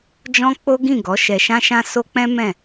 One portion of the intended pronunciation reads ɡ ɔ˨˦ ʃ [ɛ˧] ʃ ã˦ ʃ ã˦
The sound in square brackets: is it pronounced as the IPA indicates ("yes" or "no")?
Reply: yes